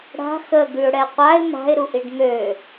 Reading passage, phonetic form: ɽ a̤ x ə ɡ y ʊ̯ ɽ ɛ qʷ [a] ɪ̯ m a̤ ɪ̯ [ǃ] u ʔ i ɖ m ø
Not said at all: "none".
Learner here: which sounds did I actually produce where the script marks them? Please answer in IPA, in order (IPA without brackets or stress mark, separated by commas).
a, ɾ